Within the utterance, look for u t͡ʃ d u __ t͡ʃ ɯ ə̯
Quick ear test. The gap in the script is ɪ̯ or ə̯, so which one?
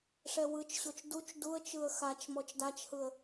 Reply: ə̯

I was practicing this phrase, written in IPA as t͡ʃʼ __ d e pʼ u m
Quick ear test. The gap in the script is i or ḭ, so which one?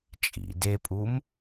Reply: ḭ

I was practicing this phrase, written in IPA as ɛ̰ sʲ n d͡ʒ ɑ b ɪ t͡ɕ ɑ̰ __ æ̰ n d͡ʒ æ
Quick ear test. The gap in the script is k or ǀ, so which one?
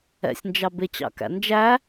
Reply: k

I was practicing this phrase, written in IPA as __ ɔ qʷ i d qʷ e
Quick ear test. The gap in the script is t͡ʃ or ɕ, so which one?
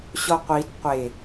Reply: ɕ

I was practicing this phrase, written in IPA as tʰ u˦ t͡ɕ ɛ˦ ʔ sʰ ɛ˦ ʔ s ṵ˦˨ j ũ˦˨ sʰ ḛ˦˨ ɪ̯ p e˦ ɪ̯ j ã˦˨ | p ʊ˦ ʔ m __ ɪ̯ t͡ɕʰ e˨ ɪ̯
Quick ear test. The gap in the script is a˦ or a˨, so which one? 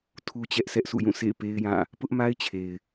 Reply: a˦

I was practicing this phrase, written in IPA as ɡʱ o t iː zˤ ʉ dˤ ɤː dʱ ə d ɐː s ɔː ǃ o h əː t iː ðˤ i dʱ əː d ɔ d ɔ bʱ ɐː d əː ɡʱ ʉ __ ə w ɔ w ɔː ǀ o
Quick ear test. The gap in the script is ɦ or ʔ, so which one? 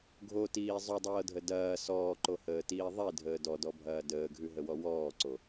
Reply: ɦ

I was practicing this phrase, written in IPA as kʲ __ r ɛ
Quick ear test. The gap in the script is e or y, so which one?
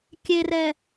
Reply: e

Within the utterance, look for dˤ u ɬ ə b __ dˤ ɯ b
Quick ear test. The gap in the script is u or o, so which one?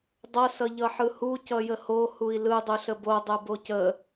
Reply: o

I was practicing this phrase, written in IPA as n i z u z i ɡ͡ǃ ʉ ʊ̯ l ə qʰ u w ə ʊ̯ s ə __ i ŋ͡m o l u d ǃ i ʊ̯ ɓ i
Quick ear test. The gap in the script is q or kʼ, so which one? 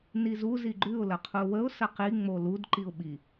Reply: q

